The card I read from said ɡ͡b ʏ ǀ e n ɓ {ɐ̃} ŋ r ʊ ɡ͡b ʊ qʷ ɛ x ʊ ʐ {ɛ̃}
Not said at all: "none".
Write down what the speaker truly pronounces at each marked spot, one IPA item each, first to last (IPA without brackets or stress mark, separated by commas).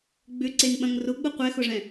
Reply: ɐ̃, ɛ̃